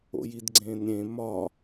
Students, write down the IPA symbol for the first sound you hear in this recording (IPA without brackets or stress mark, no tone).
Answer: o̰